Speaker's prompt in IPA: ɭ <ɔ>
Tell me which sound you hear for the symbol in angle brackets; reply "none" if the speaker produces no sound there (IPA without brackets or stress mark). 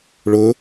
ʊ